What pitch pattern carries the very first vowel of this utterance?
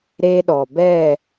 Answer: high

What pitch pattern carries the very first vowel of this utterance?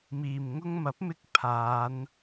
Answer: low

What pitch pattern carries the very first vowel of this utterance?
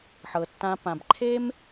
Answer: low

